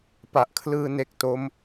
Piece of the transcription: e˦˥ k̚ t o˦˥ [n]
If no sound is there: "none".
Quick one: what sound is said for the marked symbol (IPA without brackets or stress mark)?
m